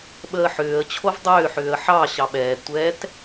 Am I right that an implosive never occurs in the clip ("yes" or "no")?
no